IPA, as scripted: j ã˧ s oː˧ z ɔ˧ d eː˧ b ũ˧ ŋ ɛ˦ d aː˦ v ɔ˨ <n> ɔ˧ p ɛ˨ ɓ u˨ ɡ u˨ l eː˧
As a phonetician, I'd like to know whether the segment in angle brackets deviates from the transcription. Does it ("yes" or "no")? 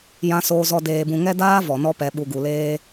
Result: no